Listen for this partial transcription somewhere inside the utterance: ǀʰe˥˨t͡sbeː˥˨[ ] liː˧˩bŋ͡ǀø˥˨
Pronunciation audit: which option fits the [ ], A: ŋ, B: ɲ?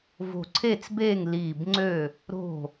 A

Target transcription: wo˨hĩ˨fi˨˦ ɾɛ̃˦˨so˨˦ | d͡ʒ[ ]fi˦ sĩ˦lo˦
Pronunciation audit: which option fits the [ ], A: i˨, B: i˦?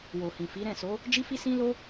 B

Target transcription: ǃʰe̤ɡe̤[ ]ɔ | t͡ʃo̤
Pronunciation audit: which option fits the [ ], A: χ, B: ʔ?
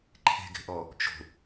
B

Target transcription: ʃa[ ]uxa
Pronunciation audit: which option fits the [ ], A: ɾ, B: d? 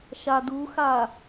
B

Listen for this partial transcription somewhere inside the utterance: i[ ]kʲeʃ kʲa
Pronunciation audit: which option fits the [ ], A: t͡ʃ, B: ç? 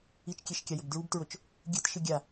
A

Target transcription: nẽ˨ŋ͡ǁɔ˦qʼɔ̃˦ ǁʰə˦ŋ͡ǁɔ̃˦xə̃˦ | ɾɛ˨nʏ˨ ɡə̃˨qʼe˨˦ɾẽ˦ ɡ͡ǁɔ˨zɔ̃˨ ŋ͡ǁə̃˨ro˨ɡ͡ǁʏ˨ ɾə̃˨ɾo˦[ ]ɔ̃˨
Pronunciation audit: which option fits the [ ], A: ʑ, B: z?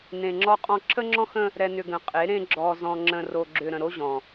A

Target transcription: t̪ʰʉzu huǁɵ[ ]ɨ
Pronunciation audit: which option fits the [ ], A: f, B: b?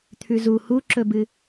B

